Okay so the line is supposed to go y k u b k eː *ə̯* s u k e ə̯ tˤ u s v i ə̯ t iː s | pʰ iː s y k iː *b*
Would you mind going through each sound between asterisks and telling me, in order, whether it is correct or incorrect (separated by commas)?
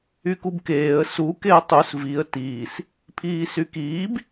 correct, correct